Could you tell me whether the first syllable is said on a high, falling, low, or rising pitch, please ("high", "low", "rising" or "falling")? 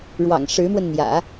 low